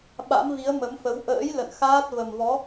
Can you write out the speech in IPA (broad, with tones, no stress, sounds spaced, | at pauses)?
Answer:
ɓ a̰˧˥ m v i˨˦ ə̯ m ə˨˦ m f ə˨˦ w ʔ ə̰ː˧˥ j l ə̰˧˨ n x aː˦˥ t̚ v ə˨˩ m v ɔ˨˦